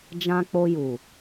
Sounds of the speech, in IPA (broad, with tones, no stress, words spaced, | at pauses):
d͡ʒã˧k͡po˧ ju˨